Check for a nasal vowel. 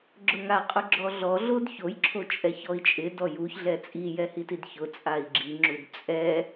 absent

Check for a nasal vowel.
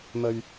absent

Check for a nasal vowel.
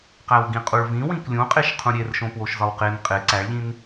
present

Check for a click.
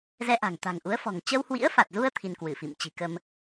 absent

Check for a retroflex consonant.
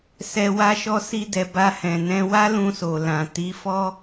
absent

